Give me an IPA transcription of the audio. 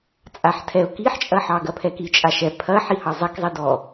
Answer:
t͡sʼ a ħ tʰ ɛ ʊ̯ k i ħ t͡ʃʼ ɐ ħ ɑ ɡ ɐ pʰ ɛ k i t͡ʃʼ a ʃ ɛ pʰ ɐ ħ i h ɑ zˤ ɛ k zˤ i d ɔ

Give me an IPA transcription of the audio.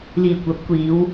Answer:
l iː˨˩ kʷ ɐ˨˥ p̚ kʷ iː˨˧ w

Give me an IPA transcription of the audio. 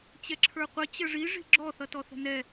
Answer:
t͡ɕ ɛ ǁʰ ə˞ qʷ ə t͡ɕ ə ʐ i ʐ i̤ ɡ͡ǁ ɔ θ ʌ t ɔ θ ə̤ n ɛ

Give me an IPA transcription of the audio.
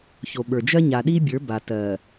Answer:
ç o˨ ɓ ə˞˨ d͡ʒ ɜ˦ ɲ a˨ ɗ i˦ bʲ ə˞˨˦ b a˨ t ɜ˨

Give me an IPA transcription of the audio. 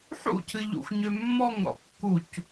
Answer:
ħ ṵ cʰ ɨ ʎ ṵ xʷ ɲ ø mː ɔ ŋ ɾ ɔ̰ kː u c

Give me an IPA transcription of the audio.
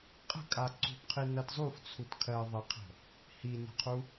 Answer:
qʼ ə̤ kʼ a ǀ ṳ p qʰ i n ɐ t zˤ u f t͡sʰ u t kʰ ɜ ðˤ ɐ qʰ ə̤ | h i n ə̤ qʰ u

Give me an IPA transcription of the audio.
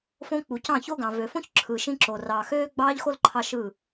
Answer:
f õ˦ k͡p u˨ c ɑ̃˦˨ ç o˦ ɡ ɑ̃˨ v ø˨ f õ˦ ç ǁʰ ɯ˨ ʃ ĩ˦ ǁ o˨ r ɑː˨ x øː˦ ɡ͡b ɑː˦ ʎ x o˦ l ǃʰ ɑ˦ ʃ ɯː˦˨

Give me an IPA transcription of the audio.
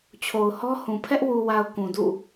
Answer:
t͡ɕʰ o˨ ʊ̯ h ɔ˦ h ũ˨ pʰ ɛ˦ ʔ w u˨ w a˨ ʊ̯ k ũ˨ d ṵ˦˨

